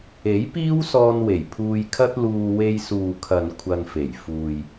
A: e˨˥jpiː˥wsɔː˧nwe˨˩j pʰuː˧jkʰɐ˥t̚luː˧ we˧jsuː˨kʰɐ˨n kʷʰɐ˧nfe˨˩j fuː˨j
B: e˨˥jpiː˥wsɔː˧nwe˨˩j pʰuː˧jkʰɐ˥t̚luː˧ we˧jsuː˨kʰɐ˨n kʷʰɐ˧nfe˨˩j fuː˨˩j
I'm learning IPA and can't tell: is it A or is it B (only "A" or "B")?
A